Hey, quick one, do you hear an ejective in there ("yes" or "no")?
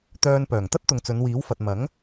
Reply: no